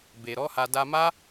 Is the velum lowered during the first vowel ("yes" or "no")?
no